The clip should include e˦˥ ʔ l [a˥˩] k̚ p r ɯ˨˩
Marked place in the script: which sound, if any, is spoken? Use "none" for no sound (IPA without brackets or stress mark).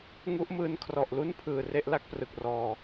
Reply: a˥˩